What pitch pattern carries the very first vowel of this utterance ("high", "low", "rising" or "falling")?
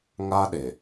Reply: high